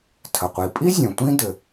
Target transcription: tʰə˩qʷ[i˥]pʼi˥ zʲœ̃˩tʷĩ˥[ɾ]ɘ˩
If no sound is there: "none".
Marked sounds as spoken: i˩, d

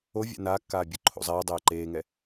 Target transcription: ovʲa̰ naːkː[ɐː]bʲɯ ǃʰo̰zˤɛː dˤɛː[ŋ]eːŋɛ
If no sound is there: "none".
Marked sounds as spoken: aː, ǃ

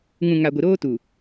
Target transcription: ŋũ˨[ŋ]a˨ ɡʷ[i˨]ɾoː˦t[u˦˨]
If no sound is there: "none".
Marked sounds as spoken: ŋ, i˨, u˨

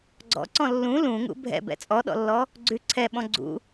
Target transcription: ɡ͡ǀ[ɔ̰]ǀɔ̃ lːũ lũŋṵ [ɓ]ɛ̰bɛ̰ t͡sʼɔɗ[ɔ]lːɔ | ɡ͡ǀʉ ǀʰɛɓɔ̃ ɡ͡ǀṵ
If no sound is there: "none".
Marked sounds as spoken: ɔ̰, bʱ, ɔ̰

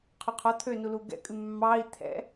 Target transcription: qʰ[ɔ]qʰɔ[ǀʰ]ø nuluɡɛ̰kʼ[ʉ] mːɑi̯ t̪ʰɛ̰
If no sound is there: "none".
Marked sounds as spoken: ɵ, t̪ʰ, ʉ

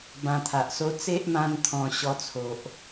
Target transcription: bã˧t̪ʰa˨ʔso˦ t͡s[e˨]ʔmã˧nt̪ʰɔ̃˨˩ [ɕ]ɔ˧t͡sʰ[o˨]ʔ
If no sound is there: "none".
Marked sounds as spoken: e˦, ɕ, o˨

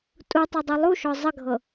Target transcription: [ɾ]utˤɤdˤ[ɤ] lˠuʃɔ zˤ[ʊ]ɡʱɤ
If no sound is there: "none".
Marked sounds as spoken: tʼ, ɤ, ə

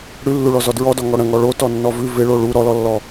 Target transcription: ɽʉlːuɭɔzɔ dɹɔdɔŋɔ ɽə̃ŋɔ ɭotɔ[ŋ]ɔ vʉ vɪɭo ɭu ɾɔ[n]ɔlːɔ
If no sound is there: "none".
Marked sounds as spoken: nː, l

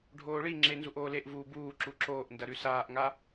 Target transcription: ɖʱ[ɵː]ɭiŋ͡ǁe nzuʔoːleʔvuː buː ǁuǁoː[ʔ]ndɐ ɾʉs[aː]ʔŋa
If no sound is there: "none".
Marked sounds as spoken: oː, ʔ, aː

